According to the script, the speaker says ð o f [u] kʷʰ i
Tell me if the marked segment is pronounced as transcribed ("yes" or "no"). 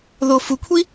yes